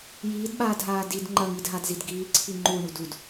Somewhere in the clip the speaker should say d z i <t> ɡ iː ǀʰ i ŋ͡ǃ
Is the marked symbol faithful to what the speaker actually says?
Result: no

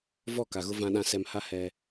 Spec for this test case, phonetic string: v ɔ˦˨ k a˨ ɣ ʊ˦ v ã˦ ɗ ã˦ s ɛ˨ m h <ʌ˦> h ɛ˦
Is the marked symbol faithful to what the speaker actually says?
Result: no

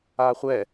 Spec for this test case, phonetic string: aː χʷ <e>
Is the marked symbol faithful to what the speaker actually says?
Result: no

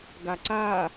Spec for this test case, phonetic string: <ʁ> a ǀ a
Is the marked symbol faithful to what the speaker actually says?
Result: no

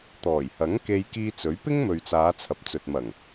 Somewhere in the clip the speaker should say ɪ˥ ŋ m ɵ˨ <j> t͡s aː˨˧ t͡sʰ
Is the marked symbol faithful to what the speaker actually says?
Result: no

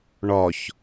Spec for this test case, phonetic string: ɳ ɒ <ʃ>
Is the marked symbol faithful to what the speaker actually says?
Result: no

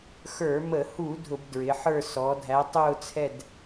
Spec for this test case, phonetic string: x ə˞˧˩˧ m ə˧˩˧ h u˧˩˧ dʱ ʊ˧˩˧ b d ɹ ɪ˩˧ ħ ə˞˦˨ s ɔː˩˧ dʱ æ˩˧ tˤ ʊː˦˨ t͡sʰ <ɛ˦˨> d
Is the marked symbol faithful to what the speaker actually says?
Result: yes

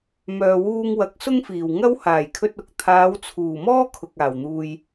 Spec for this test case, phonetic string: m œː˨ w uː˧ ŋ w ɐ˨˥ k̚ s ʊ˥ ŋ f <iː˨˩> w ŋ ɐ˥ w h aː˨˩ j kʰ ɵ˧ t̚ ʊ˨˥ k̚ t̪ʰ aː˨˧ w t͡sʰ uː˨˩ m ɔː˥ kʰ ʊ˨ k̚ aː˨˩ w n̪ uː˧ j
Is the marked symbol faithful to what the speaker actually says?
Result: yes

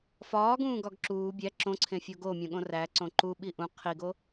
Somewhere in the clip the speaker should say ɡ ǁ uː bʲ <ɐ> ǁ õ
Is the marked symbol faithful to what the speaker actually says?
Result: no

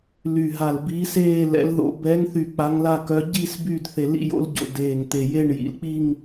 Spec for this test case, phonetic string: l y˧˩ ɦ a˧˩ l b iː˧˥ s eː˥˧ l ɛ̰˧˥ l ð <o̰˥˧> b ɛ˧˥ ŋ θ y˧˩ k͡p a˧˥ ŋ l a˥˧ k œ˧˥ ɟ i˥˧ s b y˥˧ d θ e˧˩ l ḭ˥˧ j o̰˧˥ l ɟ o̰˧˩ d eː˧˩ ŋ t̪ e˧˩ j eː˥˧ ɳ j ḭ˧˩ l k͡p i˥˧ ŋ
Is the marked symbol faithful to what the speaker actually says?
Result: no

